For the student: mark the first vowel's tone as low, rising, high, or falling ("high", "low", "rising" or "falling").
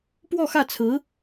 falling